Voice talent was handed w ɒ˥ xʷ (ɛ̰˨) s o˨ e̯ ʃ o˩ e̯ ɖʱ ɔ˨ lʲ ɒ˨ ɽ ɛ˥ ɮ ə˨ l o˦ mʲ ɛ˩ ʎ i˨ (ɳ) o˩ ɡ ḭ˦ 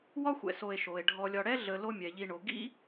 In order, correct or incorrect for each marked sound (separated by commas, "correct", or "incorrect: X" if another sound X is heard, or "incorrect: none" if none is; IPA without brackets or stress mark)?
correct, correct